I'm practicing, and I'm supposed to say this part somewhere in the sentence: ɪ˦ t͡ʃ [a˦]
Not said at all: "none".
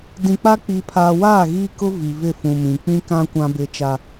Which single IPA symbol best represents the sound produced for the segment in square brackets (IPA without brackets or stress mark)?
a˦